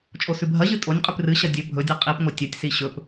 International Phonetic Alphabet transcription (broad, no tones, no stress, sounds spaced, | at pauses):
t͡ʃʼ o s ʉ bʱ ɐ ʑ ɨ tʼ o nʲ qʼ ʉ p r ɨ ɕ ɐ dʲ ɵ bʱ ɵ dʲ ɨ qʼ i p ŋʷ ɐ tʲ ɐ tʲ s i ɕ ɵ p